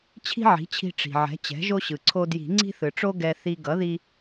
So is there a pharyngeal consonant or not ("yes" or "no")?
yes